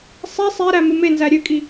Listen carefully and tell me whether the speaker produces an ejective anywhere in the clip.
yes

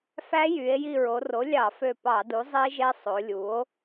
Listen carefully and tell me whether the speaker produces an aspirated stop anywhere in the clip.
no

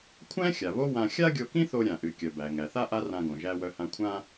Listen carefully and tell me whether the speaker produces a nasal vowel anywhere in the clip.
yes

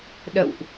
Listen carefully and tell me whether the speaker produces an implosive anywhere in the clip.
yes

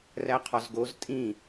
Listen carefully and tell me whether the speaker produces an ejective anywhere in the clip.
yes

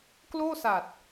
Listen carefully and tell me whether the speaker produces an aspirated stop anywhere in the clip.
no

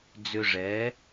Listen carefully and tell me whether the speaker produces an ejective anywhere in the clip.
no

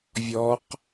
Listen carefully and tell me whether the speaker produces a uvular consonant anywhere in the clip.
yes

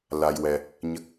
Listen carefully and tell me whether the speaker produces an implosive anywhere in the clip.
no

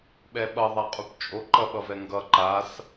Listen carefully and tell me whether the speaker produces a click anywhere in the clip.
yes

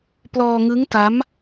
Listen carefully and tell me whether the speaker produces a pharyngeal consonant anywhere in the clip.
no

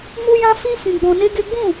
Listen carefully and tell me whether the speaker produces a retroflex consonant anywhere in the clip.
no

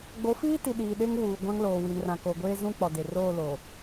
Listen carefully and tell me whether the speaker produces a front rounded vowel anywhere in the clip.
no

